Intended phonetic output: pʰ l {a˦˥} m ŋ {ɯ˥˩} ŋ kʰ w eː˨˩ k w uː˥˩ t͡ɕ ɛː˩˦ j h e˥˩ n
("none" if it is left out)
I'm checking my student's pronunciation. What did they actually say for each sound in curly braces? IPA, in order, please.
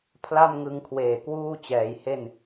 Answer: a˥˩, ɯ˧

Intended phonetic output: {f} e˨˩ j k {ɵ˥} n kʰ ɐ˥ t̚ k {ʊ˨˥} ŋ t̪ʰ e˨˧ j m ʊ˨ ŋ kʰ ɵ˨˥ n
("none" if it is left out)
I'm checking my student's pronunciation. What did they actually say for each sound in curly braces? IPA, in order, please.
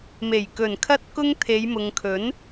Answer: m, ɵ˨˩, ʊ˥

